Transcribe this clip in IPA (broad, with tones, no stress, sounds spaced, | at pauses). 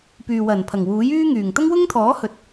p yː˨ w ɐ˨˩ n pʰ ɐ˨˩ ŋ w uː˨˥ j yː˥ ŋ yː˨˩ ŋ t̪ ɐ˥ ŋ w ʊ˥ ŋ t̪ʰ ɔː˨˥ h ɵ˨ t̚